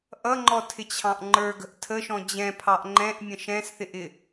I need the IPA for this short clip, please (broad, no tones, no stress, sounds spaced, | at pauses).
ʔ ʌ ŋ͡ǃ ɔ tʰ ɪ t͡ɕʰ ɑ̃ ʔ ŋ͡ǃ ə˞ ɡ ə̤ ʔ tʰ ə ʃ ɔ̃ d͡ʑ ɛ̃ pʰ ɑ ʔ ŋ͡ǃ ɛ̃ ʔ mʲ ə̃ ʃ ɛ̃ s θ ɪ ʔ ɪ